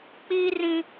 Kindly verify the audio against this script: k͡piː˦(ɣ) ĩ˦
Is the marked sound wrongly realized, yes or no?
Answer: yes